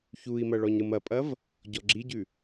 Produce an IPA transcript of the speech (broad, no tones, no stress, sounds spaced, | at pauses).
ç u i̯ m ɐ ɭ ɔ ɲ ɾ ɯ m ɐ pʼ ɐ v | ɟ ɔ ɡ͡ǁ i ɟ ʉ